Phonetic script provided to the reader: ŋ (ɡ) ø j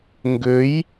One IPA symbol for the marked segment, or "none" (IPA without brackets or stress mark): ɡ